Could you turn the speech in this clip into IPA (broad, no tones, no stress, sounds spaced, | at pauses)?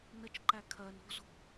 n ə t͡ʃ ǃ æ kʰ ɜ n o̤ z o̤